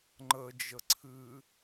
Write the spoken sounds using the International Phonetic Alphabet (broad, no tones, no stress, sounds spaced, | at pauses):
ŋ͡ǃ ə d͡ʒ ə ǀʰ ɨ